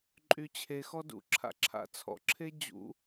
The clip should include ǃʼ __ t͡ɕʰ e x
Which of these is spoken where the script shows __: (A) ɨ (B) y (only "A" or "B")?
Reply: B